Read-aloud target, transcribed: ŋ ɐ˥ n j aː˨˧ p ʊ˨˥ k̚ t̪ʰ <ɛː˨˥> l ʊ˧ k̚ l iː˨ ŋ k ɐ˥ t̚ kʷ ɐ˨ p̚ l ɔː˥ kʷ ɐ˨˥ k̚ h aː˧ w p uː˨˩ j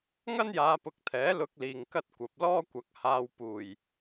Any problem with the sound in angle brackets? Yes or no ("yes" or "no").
no